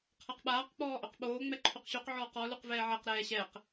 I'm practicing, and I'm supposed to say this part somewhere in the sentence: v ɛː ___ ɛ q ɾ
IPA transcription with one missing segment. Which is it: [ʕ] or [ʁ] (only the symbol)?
ʕ